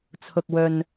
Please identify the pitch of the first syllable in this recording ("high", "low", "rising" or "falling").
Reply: low